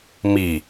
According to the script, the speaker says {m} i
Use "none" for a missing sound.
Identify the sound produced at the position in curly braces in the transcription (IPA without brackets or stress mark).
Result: m